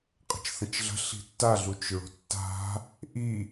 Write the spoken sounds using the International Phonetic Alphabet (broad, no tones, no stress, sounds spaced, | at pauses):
qʼ ə̤ t͡ʃ θ ə̃ t͡ʃ ɮ ə̤ ɬ i̤ tː a ɮ u t͡ʃ ɹ o̤ tː a̤ | ʔ i